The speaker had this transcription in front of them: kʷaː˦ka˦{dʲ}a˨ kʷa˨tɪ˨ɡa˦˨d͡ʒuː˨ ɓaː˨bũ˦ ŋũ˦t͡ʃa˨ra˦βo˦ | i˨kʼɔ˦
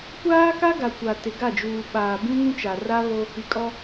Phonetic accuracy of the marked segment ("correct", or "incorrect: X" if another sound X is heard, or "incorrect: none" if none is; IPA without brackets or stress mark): incorrect: ɡ